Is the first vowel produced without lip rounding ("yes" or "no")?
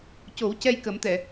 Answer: no